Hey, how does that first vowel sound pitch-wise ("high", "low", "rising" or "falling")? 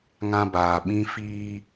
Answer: high